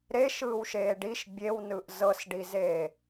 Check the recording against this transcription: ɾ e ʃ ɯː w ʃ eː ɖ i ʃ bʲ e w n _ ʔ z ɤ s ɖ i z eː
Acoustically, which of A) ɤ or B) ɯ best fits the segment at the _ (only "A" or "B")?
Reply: B